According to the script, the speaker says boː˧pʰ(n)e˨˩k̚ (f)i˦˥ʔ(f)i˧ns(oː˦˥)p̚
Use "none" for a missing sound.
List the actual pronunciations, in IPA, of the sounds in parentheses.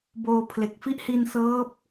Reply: l, f, h, ɤː˦˥

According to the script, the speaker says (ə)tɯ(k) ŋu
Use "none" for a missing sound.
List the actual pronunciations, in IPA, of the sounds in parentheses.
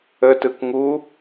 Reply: ə, k

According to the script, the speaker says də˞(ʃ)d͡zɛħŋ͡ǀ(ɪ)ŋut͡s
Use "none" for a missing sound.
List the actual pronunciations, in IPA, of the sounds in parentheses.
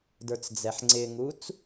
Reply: t͡s, ɪ

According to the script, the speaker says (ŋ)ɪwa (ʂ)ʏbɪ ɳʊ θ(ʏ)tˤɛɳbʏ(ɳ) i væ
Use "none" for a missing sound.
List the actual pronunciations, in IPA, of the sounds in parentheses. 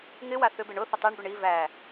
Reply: ŋ, θ, ə, ɳ

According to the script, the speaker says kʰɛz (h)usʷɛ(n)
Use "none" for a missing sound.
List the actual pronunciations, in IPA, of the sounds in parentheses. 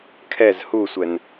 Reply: h, n

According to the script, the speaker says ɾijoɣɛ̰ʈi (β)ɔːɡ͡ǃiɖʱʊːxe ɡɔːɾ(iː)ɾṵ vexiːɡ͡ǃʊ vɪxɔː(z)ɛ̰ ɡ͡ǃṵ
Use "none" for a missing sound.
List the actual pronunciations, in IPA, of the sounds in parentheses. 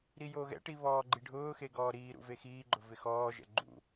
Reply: β, iː, ʒ

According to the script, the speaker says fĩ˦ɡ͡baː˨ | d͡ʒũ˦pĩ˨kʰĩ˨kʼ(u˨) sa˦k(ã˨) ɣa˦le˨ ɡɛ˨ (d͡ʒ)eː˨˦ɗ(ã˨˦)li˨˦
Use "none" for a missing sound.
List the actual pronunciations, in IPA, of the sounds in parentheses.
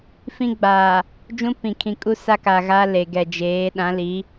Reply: u˦, a˨, d͡ʒ, ã˨˦

